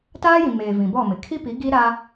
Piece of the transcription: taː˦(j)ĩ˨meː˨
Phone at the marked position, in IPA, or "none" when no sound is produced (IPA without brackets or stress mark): j